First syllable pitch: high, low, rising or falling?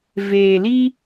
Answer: low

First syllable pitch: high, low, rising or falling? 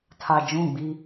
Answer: low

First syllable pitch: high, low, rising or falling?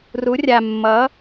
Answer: rising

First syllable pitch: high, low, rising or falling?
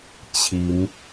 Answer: rising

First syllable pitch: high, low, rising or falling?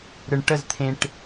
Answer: low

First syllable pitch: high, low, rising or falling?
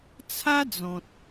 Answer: high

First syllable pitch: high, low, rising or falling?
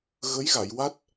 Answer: rising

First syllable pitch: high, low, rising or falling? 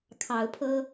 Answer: rising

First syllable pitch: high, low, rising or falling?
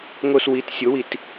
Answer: low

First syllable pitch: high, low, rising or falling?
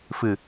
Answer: low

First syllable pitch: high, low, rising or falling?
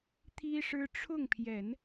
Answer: high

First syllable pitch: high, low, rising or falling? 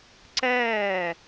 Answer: falling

